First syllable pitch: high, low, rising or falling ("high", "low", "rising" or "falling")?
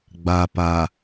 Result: low